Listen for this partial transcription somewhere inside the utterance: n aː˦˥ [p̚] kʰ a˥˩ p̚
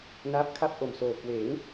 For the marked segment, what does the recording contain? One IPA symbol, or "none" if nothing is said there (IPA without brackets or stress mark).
p̚